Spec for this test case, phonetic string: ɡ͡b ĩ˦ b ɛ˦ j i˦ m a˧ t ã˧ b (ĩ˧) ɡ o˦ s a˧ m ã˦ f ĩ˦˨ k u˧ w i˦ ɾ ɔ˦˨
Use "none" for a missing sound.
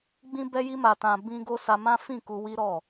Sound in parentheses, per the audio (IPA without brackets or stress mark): ĩ˦